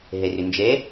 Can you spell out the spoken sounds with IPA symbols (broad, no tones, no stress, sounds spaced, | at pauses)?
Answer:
ɦ ɛ r ʏ n d͡ʒ ɛ